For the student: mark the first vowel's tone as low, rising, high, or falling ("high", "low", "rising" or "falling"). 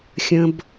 high